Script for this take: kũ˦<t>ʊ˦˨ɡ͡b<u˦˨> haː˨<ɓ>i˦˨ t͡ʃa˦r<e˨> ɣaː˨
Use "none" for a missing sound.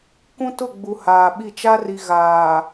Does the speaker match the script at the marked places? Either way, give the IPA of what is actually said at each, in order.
t, u˨, ɓ, i˨

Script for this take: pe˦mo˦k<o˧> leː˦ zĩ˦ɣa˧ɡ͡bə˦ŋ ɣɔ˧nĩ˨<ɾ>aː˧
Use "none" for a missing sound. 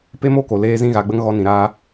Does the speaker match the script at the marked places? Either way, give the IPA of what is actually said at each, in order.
o˨, ɾ

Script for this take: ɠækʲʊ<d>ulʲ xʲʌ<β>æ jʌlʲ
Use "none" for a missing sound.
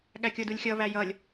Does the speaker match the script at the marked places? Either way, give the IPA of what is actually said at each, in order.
d, β

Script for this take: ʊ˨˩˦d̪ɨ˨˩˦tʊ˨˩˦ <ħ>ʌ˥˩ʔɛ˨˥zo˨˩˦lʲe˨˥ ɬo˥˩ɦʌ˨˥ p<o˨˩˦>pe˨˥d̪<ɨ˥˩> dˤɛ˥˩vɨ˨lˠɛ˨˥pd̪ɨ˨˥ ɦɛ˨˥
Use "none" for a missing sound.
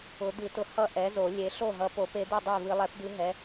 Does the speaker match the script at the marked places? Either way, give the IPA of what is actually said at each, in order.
h, o˨˩˦, ɨ˥˩

